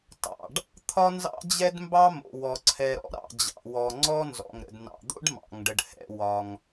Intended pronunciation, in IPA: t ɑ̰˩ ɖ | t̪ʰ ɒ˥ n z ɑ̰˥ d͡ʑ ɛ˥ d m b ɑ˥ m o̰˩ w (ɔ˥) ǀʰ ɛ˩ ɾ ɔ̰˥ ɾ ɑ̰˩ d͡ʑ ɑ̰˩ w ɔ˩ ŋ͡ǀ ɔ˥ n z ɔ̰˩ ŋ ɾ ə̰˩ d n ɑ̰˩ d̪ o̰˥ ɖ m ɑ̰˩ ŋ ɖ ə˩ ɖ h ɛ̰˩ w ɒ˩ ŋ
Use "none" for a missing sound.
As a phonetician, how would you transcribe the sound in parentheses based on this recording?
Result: ɔ˩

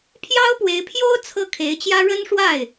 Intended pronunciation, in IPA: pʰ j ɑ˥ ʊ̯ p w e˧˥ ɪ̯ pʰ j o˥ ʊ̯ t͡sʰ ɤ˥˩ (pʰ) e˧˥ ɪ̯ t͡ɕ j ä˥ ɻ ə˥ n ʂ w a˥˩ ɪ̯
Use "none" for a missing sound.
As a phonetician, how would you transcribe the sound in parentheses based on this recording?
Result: kʰ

